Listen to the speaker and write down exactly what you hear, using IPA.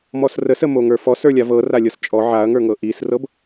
m ɔ s r ə s ə m o ŋ ə˞ f ɔ s ə˞ lʲ a v ɤ r a lʲ ɤ s t͡ʃʼ ɔ ʕ a ɐ̯ ŋ ə˞ ŋ ɤ ʔ i s r ɤ b

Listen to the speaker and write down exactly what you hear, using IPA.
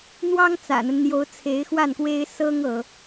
n̪ w ɑ˥ ŋ t͡s ä̰˨˩ n̪ ə˦ n n̪ j o˧˥ ʊ̯ t͡sʰ e˧˥ ɪ̯ x w a˥˩ n k w e˥ ɪ̯ s ɤ˥ ŋ ɤ˧˥

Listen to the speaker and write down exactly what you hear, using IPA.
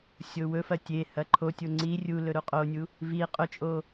sʲ o w ɵ f ɐ tʲ e h ɐ ǃʰ o tʲ o ŋ͡ǀ i rʲ u l ɵ ɾ u qʼ o nʲ u | v i qʼ ɵ t͡ʃʼ o

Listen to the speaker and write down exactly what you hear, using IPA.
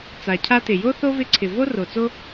t͡s a˨ cʰ a˧ t ɪ˨ j o˦ θ o˦ v ɪ˧ ǀʰ ɪ˨ v o˦ r o˨ t͡s o˦

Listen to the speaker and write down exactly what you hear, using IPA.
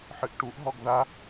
ħ ɨ ʔ ʈ u ʔ ɦ ɔ ɡ ð a

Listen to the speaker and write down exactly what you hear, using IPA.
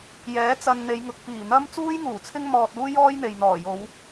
j ɛː˨˥ t͡s ɐ˧ n n̪ e˨˧ j ŋ ʊ˨ k̚ p iː˨˩ n̪ ɐ˥ m t͡s uː˥ j ŋ uː˨˩ t͡sʰ ɪ˥ ŋ m ɔː˧ t̚ uː˥ j ɔː˥ j n̪ e˨ j n̪ ɔː˨˩ j o˨˧ w

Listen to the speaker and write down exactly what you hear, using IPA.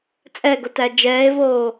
t͡sʼ ɛ ɡ o t æ d͡ʒ ɛː e̯ v oː

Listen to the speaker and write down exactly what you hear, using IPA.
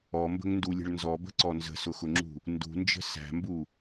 ɔ m b ə̤ ŋ n d u lʲ ə̤ ɭ n z ɔ b ə̤ ǀ ɔ n z ə̤ s ʊ x ʊ ŋ͡ǁ ṳ | n d ṳ n d͡ʒ ə̤ s æ̤ m b u

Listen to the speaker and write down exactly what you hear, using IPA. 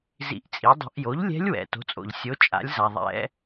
z ḭ˧˥ ʔ t͡sʼ i˩˥ dˤ o̤˧˥ ʔ j o˩˥ ʎ lʲ ɛ̤˧˥ lʲ w ɛ̰˩ t o̤˩˥ t͡sʼ o̰˩ ʎ sʲ o˩˥ t͡ʃʼ a̰˩˥ lʲ z a˩ ðˤ ɛ̰˧˥

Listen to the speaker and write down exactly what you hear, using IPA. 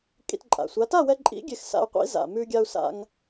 kʼ ḭ˧ t ǃʼ a̰˨˩ sʷ a˨˥ t a˥˨ w ɛ˧ ǃʼ ḭ˨˥ ɡʲ e˧ x s a̰˧ u̯ qʷ ḭ˨˥ z a̰˨˩ m ʉ˧ ɡʲ a˧ u̯ s a̰˧ ŋ

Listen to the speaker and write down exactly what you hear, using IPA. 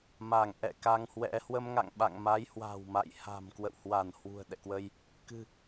m a˧˩ ŋ ʔ ɛ̰˧˨ k a˧ ŋ h w ɛ̰˧˥ h w ə˧ m ŋ a̰˧˨ ŋ ɓ a̰˧˨ ŋ m a˨˦ j h w a̤˨˩ w m a̰˧˨ j h a̤˨˩ m k w ə̰˧˨ w h w a˧˩ n h w ṳ˨˩ ə̯ ɗ ɛ̰˧˨ k w ə˧ j | k ɨ̤˨˩

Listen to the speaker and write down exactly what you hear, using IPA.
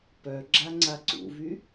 p œ ɡ͡ǁ a ŋ͡ǀ a ǀ ṵ v y

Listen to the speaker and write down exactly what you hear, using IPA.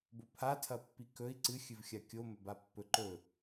b o pʰ a tʰ ɐ pː i k ɵ i̯ ǀ ɨ xʲ ɨ v xʲ a kʲ o m ɵ b a pː ɵ ǃ ɵ

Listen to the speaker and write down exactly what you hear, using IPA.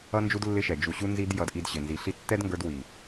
ʌ˦ n d͡ʒ u˦ d lː ɪ˦ ʃ ɛ˨ d͡ʒ u˨ ɕ u˧ n z i˧ d j ʌ˧ d ʔ i˧ d ɕ ɪ˨ n z i˨˦ ɬ i˦ tː ɛ˦ d ŋ ɡ ə˞˧ d w i˨

